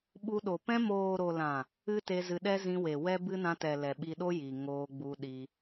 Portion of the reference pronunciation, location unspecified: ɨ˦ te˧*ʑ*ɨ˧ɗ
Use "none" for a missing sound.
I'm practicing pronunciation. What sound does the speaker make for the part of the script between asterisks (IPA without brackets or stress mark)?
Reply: z